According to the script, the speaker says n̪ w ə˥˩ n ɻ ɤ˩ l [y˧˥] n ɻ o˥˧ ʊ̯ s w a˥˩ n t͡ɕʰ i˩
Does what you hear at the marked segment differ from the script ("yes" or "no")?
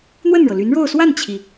no